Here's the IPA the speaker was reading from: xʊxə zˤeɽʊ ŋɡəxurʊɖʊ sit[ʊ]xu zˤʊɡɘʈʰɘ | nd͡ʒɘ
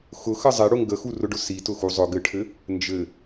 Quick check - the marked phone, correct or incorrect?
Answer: correct